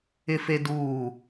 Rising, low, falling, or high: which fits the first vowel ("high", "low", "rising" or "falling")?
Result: high